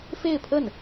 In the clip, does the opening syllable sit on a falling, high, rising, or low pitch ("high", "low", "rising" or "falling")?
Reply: falling